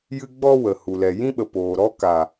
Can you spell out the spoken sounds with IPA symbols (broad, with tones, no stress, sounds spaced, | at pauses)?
j ɨ˦ ɡ͡b ɔ˦ w ə˨ h u˨ l ɛ˨ j ĩ˦ ɓ ə˨ p oː˨ ɾ ɔ˦ k a˨